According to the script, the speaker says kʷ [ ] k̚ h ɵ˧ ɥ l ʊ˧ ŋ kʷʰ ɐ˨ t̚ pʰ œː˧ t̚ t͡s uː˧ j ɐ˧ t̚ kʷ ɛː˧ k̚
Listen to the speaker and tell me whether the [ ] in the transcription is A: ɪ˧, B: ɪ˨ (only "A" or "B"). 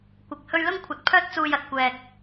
B